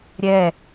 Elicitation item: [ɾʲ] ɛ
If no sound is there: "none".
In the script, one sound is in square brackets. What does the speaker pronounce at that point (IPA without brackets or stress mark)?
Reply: ɾʲ